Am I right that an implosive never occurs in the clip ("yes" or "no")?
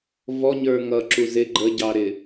yes